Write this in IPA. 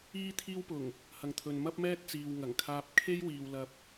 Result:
iː˥ t̪ʰ iː˥ w p ʊ˨˩ ŋ | h ɐ˨ ŋ t̪ʰ ɵ˨ n m ɐ˥ p̚ m ɛː˥ t̚ t͡s iː˨ w ŋ ɐ˨˩ ŋ kʰ aː˧ p̚ kʰ e˥ j w iː˨ w l ɐ˥ p̚

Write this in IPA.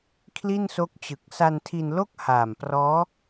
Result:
kʰ l i˥˩ n s o˦˥ k̚ t͡ɕ ɯ˨˩ k̚ s a˧ n tʰ i˧ n l o˥˩ k̚ h aː˨˩ m p r ɔː˦˥

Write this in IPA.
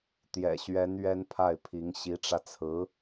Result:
t̪ j ɛ̰˨˩ ɕ ɥ ɛ˧˥ n ɥ ɛ˥ n pʰ a˥˩ ɪ̯ pʰ i˧˥ ŋ ɕ i˧˥ ʈ͡ʂ ä˧ t͡sʰ ɹ̩˧˥

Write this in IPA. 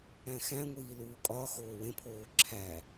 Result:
æ̃ x æ̃ ŋʷ iː l uː kʼ ɒ x oː w ẽ pʰ oː ǁʰ æ

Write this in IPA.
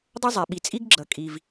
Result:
dˤ ʌ˥ zˤ ɛ˩ ɓ i˩ t͡sʼ i˥ ɡ ɡ͡ǁ ʌ˩ kʼ i˩ v

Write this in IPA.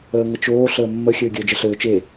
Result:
əː ŋ ə t͡ʃ oː ɬ əː mː ə xʲ ɘː ɡʲ əː d͡ʒ ə ɬ ɘː t͡ʃ e

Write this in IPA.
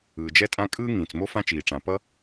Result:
ɯː˩ d͡ʒ ɛ˥ tʼ ã˥ kʼ ɯː˥ ŋ ĩː˩ t͡s m o˥ f ã˥ t͡ʃ iː˩ ʈ͡ʂ ã˩ p ʌ˥

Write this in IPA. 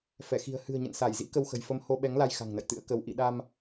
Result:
f ɛ˧˩ x i̤˨˩ ə̯ h ɨ̤˨˩ ə̯ ɲ ə̰˧˨ n s a˧˩ j z ḭ˧˥ k ə˧ w x ə̤˨˩ j f ə˧ m h o˧ ɓ ɛ˨˦ ŋ l a˧ j x a̤˨˩ ŋ n ə̰˧˨ j t̪ ɨ̰˧˥ ə̯ k ə˨˦ w ʔ ḭ˧˨ ɗ a˧ m

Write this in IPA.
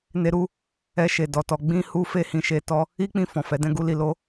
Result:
n e˦ ɾ u˦ | ɛ˧ ʃ e˨ d ɔ˧ t ɔ˧ ɡ͡b ĩ˦ h u˦ f e˦ h ĩ˧ ʃ e˧ t ɔ˦ | i˦ k͡p ĩ˧ f ɔ̃˨ f ɛ˨˦ d ɛ̃˦ ɡ u˦ l i˧ l o˦

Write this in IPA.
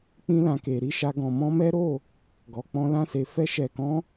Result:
k͡p ĩ˧ l ã˨ k e˨ ɾ i˨˦ ʃ a˧ ɡ ɔ̃˨ m ɔ̃˧ m ɛ˦ ɾ o˦˨ | ɡ ɔ˨ k͡p ɔ̃˧ l ã˦ s e˧ f ɛ˧ ʃ ɛ˨ k ɔ̃˨˦

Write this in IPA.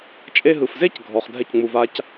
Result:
t͡ʃʼ e˧ ɦ ɯ˨ f z e˦ c ɡʱ ɔ˨ χ dʱ ɛ˧ c ŋ͡m u˨ v a˧ c

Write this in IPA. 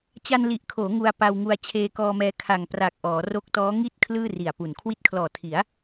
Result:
t͡ɕ a˧ n l i˨˩ ʔ kʰ oː˩˦ ŋ u˧ a̯ p a˧ w ŋ u˧ a̯ t͡ɕʰ eː˧ k ɔː˧ m ɛː˧ kʰ a˨˩ ŋ p r a˨˩ k̚ ʔ ɔː˩˦ r o˦˥ k̚ t ɔː˦˥ ŋ i˥˩ t̚ kʰ l ɯː˥˩ r i˨˩ a̯ p u˨˩ n kʰ w i˦˥ t̚ kʰ l ɔː˨˩ tʰ i˩˦ a̯

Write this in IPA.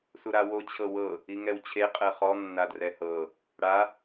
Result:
s u ɾ a w o t͡ɕʰ ɤ w ɤ | i ŋ ɛ w t͡ɕʰ e qʼ ɛ χ ɔ nː a d r ɛ h ɤ | ɽ a

